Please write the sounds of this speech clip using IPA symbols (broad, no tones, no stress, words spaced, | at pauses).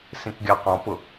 sĩkɡʲɑqɔ̃pʊ